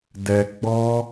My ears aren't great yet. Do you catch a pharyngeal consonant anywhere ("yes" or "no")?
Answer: no